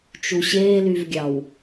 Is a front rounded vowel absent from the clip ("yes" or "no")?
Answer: no